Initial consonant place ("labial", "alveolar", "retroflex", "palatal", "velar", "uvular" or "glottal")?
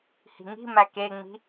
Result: glottal